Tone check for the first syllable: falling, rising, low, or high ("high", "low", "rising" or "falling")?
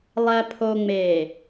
low